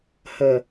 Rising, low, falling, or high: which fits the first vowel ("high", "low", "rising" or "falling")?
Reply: low